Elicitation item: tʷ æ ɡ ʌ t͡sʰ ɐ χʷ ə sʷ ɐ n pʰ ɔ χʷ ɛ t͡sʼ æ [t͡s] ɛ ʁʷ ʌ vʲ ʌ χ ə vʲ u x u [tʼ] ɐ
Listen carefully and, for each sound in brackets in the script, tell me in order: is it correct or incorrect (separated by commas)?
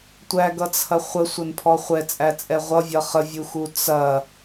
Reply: incorrect, incorrect